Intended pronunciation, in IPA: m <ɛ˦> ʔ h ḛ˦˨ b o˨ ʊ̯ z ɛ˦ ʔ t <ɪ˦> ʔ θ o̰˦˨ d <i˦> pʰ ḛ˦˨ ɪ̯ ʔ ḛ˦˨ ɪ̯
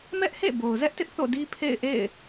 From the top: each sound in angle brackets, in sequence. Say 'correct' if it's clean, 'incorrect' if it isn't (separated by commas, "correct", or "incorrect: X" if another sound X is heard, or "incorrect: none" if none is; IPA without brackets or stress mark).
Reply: correct, correct, correct